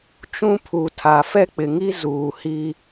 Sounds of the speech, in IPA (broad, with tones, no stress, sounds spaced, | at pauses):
t͡ʃ ũ˦ pʰ u˨ tʰ a˨ f ɛ˦ k͡p ɪ˨ ŋ i˦ z uː˨ h i˦